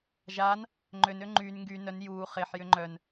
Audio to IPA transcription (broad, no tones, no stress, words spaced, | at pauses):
ʒan | ŋ͡ǃønø ŋ͡ǃyn ŋɡy nœn juː χeħjʏ ŋ͡ǃœn